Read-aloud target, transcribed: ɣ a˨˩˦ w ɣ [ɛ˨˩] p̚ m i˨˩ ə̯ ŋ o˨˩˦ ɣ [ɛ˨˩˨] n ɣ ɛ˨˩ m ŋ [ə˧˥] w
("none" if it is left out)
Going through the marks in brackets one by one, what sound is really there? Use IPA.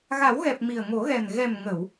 ɛ˨˩, ɛ˨˩, ə˨˩˨

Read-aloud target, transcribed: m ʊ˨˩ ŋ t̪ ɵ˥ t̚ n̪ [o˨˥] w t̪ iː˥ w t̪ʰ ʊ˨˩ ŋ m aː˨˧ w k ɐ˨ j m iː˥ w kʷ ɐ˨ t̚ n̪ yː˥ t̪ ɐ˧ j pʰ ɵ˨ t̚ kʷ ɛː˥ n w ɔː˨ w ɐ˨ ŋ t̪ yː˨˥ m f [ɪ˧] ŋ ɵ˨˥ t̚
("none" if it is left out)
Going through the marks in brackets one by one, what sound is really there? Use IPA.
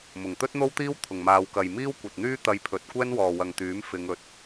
o˥, ɪ˨˧

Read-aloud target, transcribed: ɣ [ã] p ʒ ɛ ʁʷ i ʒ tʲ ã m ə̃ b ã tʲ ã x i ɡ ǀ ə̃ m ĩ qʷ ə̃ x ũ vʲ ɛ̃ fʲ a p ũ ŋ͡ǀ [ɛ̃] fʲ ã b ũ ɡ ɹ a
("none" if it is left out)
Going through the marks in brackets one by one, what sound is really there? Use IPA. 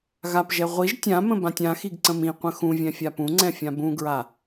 a, ɛ̃

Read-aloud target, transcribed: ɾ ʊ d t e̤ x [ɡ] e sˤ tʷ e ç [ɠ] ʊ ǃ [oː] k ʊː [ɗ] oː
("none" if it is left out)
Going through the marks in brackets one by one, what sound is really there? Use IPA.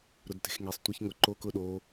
ŋ, ŋ, oː, ɗ

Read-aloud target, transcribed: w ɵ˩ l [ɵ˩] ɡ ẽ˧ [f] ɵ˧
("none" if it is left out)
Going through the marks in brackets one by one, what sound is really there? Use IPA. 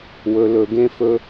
ɵ˩, f

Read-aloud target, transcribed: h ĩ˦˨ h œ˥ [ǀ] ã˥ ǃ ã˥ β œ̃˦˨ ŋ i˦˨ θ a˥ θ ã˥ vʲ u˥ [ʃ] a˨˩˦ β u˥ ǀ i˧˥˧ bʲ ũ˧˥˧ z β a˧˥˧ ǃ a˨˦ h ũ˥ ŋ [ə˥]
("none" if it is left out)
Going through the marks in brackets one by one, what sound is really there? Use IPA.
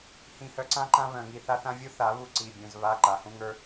ǀ, θ, ə˞˥

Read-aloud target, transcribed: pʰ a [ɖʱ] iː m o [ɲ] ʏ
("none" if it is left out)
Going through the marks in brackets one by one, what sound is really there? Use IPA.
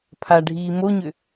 ɖʱ, ɲ

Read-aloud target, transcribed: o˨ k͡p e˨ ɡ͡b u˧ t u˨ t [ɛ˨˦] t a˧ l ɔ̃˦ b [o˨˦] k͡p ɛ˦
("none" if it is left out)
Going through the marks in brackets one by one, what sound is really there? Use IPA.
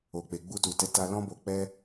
ɛ˨˦, o˧

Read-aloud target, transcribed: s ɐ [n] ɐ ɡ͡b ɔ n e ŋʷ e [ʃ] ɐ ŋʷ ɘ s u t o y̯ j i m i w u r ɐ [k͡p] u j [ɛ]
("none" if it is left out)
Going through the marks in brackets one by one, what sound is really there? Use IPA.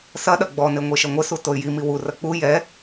ɗ, ʃ, k͡p, ɛ

